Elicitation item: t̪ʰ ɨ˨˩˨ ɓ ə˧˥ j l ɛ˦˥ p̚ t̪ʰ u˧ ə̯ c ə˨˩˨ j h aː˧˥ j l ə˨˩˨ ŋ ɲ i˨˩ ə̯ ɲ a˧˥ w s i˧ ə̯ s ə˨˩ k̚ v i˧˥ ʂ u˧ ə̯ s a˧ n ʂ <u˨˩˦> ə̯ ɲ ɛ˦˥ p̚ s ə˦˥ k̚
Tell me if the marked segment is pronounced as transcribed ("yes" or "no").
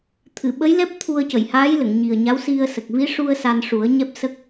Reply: yes